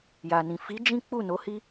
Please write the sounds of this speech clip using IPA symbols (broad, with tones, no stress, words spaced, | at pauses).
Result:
ja˨nĩ˨ fi˨˦ d͡ʒĩ˦k͡pu˦˨ no˨˦hi˦